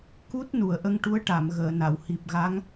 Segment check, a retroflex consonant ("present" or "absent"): present